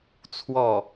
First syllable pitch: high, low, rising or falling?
falling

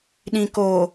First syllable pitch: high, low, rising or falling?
low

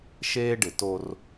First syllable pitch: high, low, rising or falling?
high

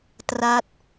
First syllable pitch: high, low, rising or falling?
falling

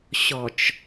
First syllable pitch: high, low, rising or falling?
low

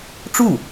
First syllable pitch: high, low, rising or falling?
falling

